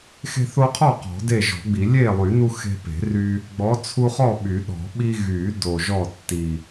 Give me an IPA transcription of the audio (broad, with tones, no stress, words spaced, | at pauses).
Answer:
xe̤˦θo˦qʰɔ˥˨ qɔ̤˨˩˦de˥˨ʒɔ̤˨˩˦ɡ͡bi˨˩˦ lʲe˥˨lˠy˨˩˦nu˦ xe̤˦pe̤˨˩˦ry˦ | ɡ͡bɔ˨˥t͡sʰu˦χɔ˥˨ ɓy˨˩˦ɗɔ̤˨˩˦ɓi˦ ɣy˨˩˦ do˨˩ʒɔ˥˨tːi˨˩